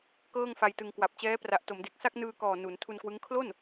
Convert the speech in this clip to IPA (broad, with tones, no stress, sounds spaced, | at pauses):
k ɤː˥˩ ŋ f a˧ j t ɯ˧ ŋ k w a˨˩ p̚ t͡ɕ ɛː˦˥ p r a˨˩ ʔ t o˩˦ m d e˨˩ k̚ s a˥˩ k̚ n ɯː˧ k ɔː˨˩ n u˩˦ n tʰ u˧ n k w ɯ˦˥ ŋ kʰ l o˥˩ n